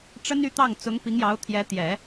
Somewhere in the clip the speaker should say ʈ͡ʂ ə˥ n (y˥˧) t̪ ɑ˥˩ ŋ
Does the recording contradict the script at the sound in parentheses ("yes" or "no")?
no